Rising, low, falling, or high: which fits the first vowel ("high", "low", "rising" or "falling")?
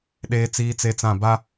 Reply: high